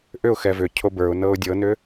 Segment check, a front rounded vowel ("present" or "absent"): present